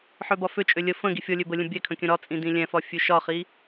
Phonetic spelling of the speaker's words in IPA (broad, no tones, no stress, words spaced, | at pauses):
ħøbɒføt͡ʃʼø lʲə fə̃ ɡifʲɔlʲø bəlʲə̃ bʲɛkʰə̃ kʲə̃ɾɒt͡sʼĩ dĩlʲɛ̃fɒ fʲøʃɒχi